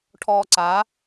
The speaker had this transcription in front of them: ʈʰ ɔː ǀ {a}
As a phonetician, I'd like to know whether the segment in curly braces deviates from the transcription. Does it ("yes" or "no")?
no